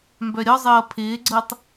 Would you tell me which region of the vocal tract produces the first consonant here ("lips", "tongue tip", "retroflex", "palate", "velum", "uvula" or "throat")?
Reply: lips